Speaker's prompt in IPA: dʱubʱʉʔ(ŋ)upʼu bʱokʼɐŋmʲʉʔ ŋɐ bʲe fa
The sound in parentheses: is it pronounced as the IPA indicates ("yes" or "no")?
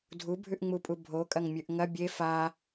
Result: no